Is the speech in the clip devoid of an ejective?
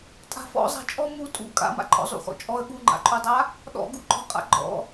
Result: no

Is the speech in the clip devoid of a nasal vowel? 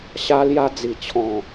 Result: no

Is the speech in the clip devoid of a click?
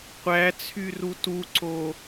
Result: no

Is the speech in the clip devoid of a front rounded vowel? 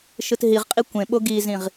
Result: yes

